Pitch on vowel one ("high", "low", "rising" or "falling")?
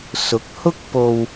rising